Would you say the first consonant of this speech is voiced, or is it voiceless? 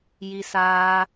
voiced